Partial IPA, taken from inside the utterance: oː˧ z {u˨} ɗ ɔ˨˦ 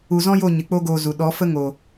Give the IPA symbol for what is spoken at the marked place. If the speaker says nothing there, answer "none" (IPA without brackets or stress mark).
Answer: u˨